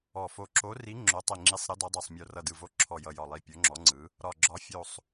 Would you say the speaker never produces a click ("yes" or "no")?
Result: no